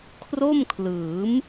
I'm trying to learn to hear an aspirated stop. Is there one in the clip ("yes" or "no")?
yes